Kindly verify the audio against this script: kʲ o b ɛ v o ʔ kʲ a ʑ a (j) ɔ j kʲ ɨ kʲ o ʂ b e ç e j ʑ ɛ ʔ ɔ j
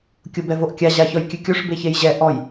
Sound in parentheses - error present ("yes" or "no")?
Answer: yes